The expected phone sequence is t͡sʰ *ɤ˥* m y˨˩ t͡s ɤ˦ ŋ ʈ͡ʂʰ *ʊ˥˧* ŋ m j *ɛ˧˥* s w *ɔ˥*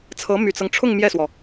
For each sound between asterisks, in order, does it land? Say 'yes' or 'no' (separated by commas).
no, yes, no, no